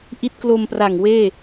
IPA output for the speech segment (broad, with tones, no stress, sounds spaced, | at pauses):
ʔ i˦˥ t̚ k l o˧ m p r a˨˩ ŋ w eː˥˩